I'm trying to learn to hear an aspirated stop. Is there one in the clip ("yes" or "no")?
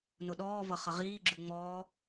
no